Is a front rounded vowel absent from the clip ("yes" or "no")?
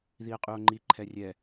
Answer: no